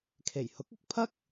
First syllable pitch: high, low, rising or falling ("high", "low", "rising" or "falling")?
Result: low